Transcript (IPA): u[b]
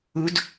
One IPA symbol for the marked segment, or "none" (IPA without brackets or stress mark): d